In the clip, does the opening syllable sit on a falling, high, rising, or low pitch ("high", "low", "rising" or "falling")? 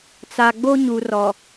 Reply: low